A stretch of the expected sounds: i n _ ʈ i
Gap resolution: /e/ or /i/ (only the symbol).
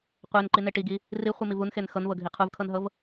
e